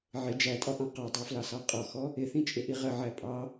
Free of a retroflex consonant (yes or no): yes